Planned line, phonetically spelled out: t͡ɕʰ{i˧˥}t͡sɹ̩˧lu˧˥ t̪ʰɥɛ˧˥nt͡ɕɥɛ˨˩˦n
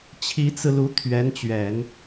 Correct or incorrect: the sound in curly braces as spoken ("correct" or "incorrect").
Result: correct